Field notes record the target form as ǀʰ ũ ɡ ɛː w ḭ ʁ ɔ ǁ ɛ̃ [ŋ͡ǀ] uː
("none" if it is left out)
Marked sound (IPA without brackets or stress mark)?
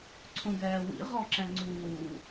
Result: ŋ͡ǀ